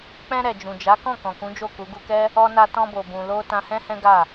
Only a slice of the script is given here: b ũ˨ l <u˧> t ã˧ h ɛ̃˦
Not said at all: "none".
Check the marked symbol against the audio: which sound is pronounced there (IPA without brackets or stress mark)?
o˧